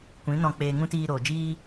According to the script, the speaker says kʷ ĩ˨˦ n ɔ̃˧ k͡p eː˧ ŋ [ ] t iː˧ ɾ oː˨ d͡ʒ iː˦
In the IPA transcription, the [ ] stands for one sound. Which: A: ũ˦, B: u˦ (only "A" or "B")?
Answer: A